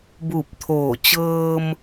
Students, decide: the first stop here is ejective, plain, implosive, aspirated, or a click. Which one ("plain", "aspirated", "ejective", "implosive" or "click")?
plain